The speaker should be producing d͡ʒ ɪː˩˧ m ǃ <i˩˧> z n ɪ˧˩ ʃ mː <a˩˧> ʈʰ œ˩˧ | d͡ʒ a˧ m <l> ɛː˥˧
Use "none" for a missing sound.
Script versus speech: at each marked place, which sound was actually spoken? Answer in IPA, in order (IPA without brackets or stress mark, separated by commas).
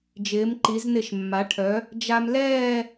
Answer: i˩˧, a˩˧, l